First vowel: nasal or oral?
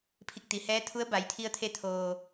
oral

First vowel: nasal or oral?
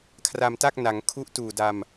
oral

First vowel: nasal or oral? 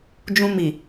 nasal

